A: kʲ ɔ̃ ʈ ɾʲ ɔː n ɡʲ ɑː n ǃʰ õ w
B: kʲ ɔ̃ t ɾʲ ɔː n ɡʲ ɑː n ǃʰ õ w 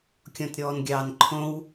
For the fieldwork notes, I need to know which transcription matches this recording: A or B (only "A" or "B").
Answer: B